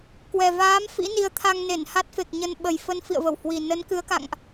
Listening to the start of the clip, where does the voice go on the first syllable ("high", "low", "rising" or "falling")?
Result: low